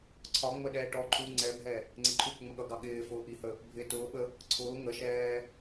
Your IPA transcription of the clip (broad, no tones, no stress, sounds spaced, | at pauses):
ǀʰ ɒ ŋ͡m ə ɗ ɛː ʈ ɔ ǃʰ u ŋ͡ǀ ɛ bʱ ɛ | ŋ͡ǀ ɪ ǃʰ u ɠ ʊ ŋ͡m ə ɠ ʌ ɡ ɑ ɠ ɪː f ʊː ʔ i h ə | bʱ ɪː t ʊː ɓ ə | ǀʰ ʊː ŋ ə ʃ ɛː